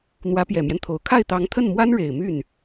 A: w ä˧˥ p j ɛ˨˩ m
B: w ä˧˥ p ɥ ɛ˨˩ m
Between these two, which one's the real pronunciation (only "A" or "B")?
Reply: A